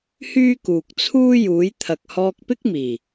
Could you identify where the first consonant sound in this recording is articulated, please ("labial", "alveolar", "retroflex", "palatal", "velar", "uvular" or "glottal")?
glottal